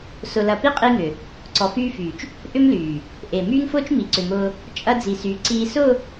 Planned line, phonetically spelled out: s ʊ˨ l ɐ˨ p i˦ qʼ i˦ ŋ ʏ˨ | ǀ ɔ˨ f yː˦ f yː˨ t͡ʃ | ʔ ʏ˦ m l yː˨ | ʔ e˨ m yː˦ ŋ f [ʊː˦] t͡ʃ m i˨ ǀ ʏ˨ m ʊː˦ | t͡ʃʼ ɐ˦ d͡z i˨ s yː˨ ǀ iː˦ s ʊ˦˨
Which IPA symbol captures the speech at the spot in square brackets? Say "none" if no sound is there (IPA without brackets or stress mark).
ʊː˦